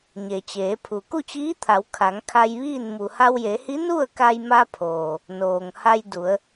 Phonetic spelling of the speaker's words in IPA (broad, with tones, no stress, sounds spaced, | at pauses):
ɲ e˩ t͡ɕ eː˩˧ pʰ u˩ k u˥˨ t͡ɕ iː˧˥ t̪ʰ a˩˧ w kʰ a˩˧ ŋ kʰ a˧ j ʋ iː˥˨ n m u˩ h a˧ w j e˩˧ h i˧˥ n u˥˨ ə̯ k a˧ j m a˧ pʰ oː˩ | n oː˩ ŋ h a˧ j d u˩˧ ə̯